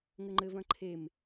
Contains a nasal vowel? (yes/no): yes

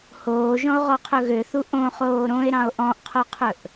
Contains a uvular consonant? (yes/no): yes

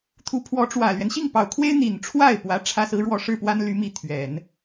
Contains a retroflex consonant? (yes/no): yes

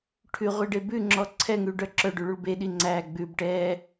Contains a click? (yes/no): yes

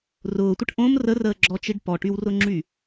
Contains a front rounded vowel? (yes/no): yes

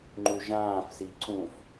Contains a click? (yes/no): yes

